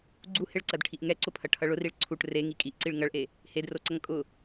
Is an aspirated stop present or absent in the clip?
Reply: present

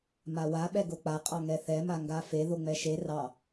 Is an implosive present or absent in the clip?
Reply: present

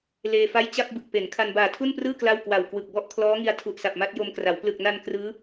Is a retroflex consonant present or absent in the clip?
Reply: absent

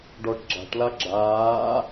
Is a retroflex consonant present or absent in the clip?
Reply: present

